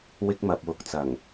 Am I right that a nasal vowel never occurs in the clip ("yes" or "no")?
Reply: yes